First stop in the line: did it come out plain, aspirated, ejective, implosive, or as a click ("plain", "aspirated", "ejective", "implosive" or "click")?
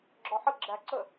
click